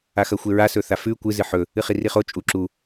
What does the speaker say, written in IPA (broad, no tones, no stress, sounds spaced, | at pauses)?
a x ɐ xʷ e ɹ a s ɵ θ a f ʉ kʷ ɨ z ɨ ħ ɵ | ɨ χ i r i χ o t͡ʃʼ u ǁ u